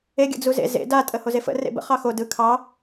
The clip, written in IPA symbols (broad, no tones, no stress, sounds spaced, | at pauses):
e ɡʲ ə̰ d͡z u z ḛ z ḛ d a tʼ ə h o z e f ə̰ r ḛ b ə̰ χ ɑ x o d ɯ kʰ ɑ